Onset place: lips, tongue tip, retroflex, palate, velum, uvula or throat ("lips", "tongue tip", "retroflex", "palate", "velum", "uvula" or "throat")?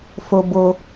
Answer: lips